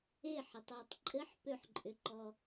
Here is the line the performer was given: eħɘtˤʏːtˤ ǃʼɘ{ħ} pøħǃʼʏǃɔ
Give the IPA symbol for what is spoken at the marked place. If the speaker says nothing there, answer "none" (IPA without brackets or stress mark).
ħ